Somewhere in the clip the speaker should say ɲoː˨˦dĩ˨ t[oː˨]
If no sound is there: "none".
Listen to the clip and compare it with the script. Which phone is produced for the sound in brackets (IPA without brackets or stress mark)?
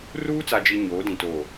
oː˨